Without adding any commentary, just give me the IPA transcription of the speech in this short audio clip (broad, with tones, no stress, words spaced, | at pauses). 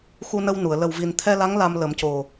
xu˧nə˧wnu˨˩˨ə̯ lə˨˩wvi˨˩nt̪ʰɛ˧la˧˥ŋ la˧mlə˨˩˦mco˨˩